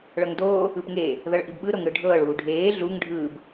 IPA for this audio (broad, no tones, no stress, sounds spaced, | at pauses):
ɭ ɤ ŋ d oː | ɯ p ŋ eː | ð ɤ ɭ ʔ i b ɓ ɯ ɾ o ŋ ɽ ɯ ɖʱ ɤː ɭ uː ɖʱ eː ɮ u ŋ ɖʱ ɯː b